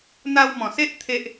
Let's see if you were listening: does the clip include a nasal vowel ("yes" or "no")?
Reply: yes